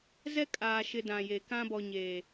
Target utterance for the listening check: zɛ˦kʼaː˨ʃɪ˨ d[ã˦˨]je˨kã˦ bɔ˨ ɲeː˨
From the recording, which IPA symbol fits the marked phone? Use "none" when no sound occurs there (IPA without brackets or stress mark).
ã˨